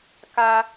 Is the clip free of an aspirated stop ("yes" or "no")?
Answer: yes